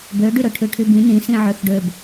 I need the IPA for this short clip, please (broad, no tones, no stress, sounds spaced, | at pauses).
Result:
b ø ɖ y ɾ ɵ ʈʰ ʉ ʈʰ y b ĩ n ĩ s ĩ ʕ ø x ɖ ø b